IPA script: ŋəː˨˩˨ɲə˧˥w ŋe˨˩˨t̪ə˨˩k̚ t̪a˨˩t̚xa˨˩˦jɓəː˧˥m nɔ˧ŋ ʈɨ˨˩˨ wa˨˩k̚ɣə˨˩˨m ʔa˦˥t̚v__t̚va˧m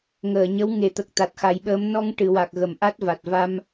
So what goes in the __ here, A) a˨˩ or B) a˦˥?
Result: A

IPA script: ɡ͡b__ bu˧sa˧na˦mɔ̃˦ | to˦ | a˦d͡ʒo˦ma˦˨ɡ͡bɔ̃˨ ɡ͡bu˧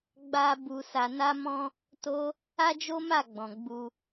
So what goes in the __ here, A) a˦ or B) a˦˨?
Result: A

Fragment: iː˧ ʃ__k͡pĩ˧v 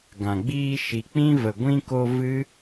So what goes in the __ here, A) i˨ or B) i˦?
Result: A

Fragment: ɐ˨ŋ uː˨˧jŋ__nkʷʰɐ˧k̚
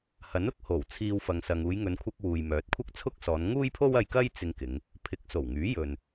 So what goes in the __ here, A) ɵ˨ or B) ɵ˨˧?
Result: B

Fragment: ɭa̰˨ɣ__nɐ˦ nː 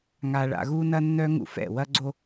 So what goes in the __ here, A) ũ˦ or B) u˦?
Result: B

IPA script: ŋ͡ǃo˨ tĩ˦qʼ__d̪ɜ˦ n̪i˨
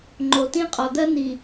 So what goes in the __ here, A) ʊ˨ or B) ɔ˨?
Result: B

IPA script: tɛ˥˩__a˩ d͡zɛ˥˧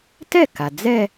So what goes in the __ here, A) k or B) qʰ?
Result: A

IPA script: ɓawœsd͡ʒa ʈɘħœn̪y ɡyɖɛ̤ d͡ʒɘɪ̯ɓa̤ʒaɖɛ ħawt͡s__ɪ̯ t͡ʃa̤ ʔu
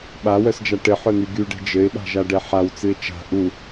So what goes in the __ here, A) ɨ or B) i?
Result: A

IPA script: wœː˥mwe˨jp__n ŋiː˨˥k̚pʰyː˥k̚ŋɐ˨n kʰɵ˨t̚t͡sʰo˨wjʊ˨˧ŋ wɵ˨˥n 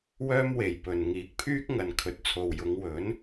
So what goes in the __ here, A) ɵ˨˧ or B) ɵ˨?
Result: B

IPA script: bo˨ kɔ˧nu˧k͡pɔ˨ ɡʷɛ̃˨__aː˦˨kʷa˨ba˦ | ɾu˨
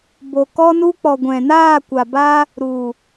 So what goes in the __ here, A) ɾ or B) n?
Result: B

